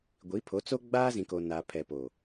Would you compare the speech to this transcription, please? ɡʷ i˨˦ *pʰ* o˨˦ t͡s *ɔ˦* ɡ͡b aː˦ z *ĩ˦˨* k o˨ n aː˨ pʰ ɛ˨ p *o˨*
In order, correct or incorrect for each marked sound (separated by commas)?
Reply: correct, incorrect, incorrect, correct